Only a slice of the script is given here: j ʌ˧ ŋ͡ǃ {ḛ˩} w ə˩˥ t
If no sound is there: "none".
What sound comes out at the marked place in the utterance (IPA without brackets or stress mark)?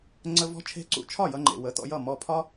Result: ḛ˩